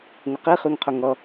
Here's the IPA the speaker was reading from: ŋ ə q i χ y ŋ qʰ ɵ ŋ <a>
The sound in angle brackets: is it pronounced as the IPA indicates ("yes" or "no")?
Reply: no